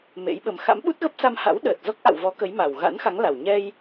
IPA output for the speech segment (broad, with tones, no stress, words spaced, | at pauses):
mḛ˧˥jɓə˨˦m xa̰˧˥mɓu˦˥t̚ɣə˦˥p̚ sa˧mha̰˧˥w ɗəː˨˩t̚zɔ˦˥k̚ʔa̰˧˨wvɔ˨˦ kə˨˦jma˨˩w ɣa̰˧˥nxa˨˦ŋ la˨˩w ɲɛ˧j